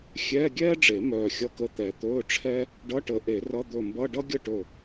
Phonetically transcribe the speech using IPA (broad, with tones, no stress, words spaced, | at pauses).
xʲɛː˧˥˧ɡʲɛː˥ɖ͡ʐe˨˩˦ mœː˧˩xʲʌ˧˥˧kə˧˥˧ t̪ɛ˨˩˦ t̪ɵː˧˥˧ʈ͡ʂʰɛ˥ | ɖʌ˧˥˧ʈə˨˩˦ ʔe˨˩˦rʌ˧˥˧ d̪ɵ˧˩mbʌ˧˥˧ ɖʌ˥ ɡʲə˥˩ʈɵ˧˩